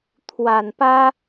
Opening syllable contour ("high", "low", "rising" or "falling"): low